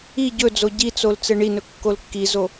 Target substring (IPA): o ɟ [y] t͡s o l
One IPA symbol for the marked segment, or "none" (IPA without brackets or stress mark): i